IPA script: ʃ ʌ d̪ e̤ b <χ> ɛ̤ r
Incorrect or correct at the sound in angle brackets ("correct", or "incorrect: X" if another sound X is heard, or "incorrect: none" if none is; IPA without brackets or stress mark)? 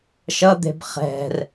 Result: correct